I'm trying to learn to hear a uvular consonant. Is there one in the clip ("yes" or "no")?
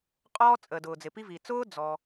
yes